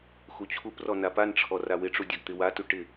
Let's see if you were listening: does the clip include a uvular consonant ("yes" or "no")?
no